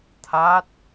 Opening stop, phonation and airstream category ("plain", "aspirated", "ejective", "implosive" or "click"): aspirated